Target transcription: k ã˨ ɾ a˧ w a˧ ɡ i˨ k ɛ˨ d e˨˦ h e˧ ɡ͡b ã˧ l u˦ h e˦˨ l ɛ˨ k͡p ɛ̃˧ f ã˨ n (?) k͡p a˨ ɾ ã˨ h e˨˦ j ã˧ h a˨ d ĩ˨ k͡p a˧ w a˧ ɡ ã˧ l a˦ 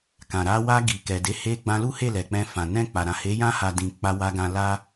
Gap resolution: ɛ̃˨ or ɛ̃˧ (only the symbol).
ɛ̃˧